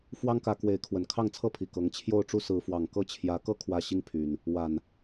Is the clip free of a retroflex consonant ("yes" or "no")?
no